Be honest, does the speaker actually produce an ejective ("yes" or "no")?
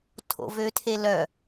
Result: no